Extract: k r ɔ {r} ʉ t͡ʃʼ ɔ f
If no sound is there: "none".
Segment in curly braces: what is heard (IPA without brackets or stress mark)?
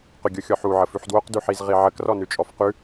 n